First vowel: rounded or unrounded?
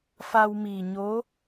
unrounded